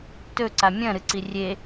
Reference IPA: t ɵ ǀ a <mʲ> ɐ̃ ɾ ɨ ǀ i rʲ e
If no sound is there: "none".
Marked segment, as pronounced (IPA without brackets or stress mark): mʲ